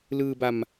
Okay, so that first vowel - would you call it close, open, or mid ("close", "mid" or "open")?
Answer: close